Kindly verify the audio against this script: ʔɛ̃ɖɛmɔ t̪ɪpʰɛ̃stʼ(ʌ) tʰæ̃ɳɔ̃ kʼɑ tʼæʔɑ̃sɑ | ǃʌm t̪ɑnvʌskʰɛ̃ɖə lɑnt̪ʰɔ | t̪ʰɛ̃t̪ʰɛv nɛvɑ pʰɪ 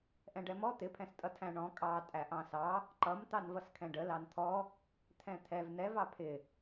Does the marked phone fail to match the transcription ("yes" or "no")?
no